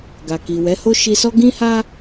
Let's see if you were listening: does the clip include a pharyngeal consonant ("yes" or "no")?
no